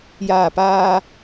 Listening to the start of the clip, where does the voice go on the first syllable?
low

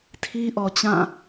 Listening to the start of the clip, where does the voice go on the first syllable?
high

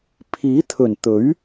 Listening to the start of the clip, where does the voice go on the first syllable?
rising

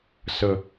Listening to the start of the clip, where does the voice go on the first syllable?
low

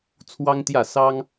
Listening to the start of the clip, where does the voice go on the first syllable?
high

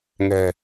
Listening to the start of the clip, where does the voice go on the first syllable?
low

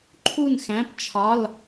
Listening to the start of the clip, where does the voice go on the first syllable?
falling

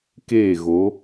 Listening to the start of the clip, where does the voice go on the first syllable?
falling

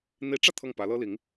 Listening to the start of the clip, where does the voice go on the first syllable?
rising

